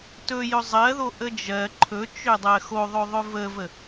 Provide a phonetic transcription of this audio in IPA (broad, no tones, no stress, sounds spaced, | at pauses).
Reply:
t ɵ j ɵ zˤ ɜ ð o ʔ ə d͡ʒ ɜ ǃʰ ɵ t͡ʃ ø dˤ ɜ x o ðˤ ɵ ðˤ ɵ v ə v ə